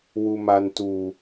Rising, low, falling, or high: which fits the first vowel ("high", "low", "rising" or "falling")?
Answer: low